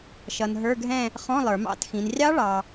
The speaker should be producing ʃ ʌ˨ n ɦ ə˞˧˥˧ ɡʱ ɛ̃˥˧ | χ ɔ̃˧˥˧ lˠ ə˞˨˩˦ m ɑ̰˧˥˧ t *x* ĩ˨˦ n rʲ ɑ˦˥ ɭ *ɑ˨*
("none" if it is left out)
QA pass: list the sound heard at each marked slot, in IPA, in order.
x, ɑ˨

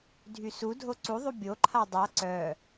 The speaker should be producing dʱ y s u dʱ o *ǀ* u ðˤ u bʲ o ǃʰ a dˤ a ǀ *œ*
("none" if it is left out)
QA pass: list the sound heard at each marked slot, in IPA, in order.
ǀ, œ

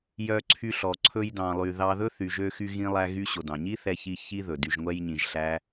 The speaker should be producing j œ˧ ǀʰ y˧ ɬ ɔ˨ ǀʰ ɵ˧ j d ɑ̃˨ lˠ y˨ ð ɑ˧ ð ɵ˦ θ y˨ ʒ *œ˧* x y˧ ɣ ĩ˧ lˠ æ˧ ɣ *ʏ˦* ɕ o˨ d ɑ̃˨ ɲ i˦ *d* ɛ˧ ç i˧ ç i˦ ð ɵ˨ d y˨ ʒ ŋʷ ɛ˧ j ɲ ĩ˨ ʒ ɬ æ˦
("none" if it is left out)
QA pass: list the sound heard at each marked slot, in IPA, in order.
ø˧, y˦, θ

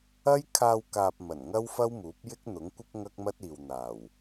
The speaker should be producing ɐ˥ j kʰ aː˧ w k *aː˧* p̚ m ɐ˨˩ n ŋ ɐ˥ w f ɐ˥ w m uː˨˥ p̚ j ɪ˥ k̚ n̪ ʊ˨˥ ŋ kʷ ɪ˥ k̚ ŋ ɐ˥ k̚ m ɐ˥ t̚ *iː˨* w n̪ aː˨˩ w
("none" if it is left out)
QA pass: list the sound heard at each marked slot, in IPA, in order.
aː˨, iː˨

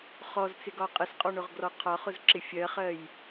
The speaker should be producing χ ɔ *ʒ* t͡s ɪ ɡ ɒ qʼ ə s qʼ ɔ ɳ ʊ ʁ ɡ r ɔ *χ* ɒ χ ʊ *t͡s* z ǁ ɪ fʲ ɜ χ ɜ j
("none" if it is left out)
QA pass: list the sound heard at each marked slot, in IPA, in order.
z, qʰ, none

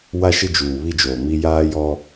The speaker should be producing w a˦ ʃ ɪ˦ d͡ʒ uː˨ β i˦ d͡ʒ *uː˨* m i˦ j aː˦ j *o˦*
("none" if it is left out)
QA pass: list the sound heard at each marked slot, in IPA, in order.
oː˨, ɔ˦

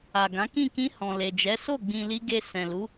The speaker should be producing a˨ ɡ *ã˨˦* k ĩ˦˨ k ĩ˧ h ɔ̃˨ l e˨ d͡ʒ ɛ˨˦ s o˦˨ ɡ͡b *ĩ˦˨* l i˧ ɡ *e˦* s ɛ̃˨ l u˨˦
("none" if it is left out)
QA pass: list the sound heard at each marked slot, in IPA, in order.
ã˨˦, ĩ˨, e˧

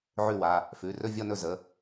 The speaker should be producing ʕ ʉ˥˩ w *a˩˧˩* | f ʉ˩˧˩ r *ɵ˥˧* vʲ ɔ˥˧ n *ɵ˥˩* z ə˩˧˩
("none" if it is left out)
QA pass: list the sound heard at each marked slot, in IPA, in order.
a˩˧˩, ɵ˥˧, ɵ˥˩

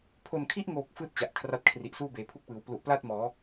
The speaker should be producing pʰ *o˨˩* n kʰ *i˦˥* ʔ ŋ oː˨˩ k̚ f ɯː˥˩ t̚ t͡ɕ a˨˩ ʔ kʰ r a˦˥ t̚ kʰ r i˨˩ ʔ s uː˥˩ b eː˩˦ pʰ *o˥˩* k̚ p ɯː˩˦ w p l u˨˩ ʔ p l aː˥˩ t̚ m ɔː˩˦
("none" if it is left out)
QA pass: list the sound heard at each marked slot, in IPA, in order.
o˨˩, i˦˥, u˥˩

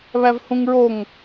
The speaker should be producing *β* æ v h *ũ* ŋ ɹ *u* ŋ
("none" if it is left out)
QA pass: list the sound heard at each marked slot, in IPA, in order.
β, ũ, o

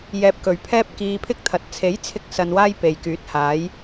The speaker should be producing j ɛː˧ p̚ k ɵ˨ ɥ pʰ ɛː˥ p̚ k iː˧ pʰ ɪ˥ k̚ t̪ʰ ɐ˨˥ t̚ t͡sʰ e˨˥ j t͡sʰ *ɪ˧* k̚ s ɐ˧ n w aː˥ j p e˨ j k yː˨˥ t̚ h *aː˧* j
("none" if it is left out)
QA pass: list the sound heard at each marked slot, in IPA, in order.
ɪ˧, aː˨˥

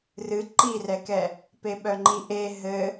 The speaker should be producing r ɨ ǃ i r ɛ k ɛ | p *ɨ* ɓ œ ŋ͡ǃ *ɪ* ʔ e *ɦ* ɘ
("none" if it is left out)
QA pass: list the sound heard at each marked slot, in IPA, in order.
e, i, ɦ

